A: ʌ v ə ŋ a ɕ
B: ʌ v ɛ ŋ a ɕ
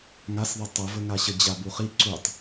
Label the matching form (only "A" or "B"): A